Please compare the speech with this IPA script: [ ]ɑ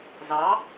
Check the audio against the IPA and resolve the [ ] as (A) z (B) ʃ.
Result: A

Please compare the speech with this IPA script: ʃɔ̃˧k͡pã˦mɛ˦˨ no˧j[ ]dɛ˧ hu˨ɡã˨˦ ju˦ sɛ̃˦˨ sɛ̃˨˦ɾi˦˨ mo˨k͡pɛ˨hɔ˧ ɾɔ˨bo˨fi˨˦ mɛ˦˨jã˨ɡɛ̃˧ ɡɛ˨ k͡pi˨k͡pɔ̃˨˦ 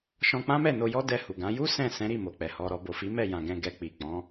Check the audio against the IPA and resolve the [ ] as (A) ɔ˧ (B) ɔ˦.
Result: B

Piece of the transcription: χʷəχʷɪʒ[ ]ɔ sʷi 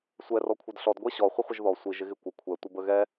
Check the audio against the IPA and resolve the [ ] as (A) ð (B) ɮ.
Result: A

